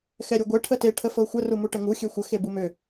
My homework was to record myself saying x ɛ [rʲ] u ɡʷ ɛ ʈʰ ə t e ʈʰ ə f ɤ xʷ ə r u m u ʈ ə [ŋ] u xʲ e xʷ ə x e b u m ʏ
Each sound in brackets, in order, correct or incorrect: incorrect: ɾʲ, correct

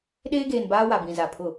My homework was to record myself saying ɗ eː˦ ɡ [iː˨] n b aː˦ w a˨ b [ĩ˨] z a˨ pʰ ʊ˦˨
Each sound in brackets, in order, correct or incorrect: incorrect: eː˨, correct

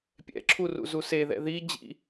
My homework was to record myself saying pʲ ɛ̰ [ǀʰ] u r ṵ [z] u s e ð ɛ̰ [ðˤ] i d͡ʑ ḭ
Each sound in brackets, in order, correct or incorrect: incorrect: ǁʰ, correct, incorrect: ð

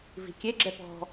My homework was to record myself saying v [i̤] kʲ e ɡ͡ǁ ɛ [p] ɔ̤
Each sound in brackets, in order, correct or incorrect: correct, correct

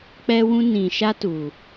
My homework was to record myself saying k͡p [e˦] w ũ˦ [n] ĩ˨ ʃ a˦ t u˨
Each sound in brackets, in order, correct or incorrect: incorrect: ɛ˦, correct

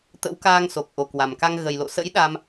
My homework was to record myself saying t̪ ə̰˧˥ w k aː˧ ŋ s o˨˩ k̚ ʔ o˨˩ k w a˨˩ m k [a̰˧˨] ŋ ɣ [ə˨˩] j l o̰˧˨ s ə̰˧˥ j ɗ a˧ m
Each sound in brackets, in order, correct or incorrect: incorrect: a˧, correct

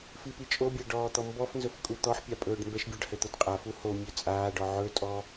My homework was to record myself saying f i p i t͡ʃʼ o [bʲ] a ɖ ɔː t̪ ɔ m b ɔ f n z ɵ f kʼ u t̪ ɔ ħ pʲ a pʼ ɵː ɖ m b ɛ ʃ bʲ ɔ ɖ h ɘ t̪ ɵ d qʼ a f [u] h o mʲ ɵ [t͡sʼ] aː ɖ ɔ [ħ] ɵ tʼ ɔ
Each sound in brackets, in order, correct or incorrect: correct, correct, correct, incorrect: ʕ

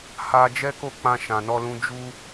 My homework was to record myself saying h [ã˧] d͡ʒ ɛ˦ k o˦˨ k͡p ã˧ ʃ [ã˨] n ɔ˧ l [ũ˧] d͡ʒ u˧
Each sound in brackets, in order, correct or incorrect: incorrect: a˧, correct, correct

